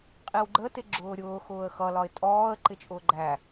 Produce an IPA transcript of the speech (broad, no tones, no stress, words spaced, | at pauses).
qʼiwɡ͡ǃə tɪɡ͡ǁʊːɾʲʊː xʊːə̯xʌ lɒɪ̯tʼɔːə̯ ǃɪt͡ʃʼʊːɡ͡ǃæ